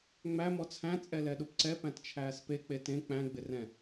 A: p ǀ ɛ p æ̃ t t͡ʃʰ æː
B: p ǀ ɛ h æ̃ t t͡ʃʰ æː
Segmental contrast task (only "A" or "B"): A